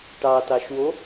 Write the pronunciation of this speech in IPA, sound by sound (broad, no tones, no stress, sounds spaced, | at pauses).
ʈ ɑ t ɑ ʃ w o